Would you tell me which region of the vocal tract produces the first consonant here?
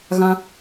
velum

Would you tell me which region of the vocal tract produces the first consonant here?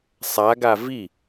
tongue tip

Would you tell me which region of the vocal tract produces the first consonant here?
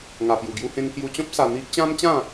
velum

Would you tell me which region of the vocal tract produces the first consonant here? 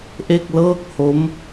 throat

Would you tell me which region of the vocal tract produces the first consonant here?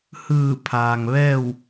throat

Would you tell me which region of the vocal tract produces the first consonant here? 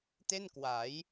tongue tip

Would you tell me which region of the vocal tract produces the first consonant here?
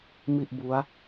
lips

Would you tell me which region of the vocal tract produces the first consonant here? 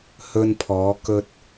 throat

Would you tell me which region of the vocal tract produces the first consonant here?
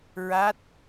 tongue tip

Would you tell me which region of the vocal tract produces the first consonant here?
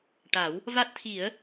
retroflex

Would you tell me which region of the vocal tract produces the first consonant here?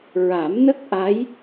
tongue tip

